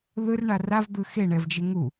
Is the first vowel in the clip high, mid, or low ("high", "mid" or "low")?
high